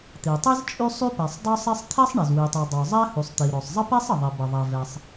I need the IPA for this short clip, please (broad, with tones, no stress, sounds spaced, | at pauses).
t̪ i˩ tˤ i˥ z t͡ʃʼ y˥ sˤ y˥ p ɛ˩ sˤ dˤ o˥ sˤ e˥ sˤ t̪ʰ ɛ˥ sˤ ɳ e˩ z w i˩ tˤ u˩ dˤ o˩ zˤ ɛ˥ h u˩ sˤ t̪ i˩ ɾ o˩ sˤ zˤ ə˥ p e˥ sˤ ə˩ ðˤ i˩ b ə˩ ðˤ ɛ˩ v ɛ˩ sˤ